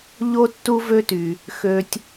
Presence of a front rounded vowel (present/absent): present